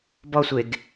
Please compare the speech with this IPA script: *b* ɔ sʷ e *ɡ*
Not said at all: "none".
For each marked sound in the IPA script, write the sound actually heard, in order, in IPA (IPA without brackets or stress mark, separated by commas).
b, ɡ